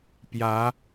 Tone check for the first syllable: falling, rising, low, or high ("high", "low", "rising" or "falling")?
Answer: rising